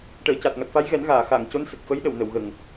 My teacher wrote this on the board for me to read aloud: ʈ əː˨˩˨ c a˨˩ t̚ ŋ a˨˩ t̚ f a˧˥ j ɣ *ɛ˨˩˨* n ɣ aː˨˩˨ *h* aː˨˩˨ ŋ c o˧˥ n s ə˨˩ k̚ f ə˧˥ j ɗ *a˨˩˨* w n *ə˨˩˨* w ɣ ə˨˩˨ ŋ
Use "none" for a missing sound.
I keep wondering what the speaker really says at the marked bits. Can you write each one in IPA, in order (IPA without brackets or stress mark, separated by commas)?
ɛ˨˩˦, x, ə˨˩˨, ə˨˩˨